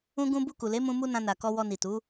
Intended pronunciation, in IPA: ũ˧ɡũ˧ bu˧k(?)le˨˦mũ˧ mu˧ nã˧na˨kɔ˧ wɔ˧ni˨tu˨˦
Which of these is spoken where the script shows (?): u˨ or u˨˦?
u˨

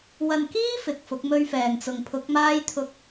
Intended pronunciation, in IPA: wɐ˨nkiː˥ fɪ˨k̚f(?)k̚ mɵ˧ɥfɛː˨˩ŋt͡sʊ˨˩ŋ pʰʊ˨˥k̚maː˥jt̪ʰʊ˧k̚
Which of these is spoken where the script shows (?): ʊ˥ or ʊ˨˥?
ʊ˨˥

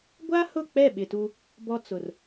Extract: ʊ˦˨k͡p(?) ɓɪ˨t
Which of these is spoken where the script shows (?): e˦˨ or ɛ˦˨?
ɛ˦˨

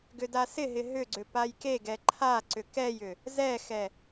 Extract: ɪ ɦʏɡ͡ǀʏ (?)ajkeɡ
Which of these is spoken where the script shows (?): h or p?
p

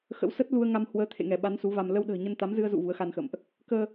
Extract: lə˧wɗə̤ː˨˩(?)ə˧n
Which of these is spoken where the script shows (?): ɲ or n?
ɲ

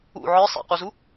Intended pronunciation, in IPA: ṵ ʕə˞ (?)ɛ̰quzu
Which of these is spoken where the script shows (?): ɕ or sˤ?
sˤ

